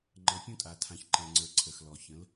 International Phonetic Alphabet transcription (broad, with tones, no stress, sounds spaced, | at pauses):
ŋ͡ǃ ɤ˨ pʲ ũ˦ tʼ a˨ tʰ ã˨ ç ǃ ɛ̃˨ ŋ͡ǀ ə˞˨ ǀʰ ə˨ x l ɔ˨ ç ə̃˨˦ l